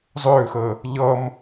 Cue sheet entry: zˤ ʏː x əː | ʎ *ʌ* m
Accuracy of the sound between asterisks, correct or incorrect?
correct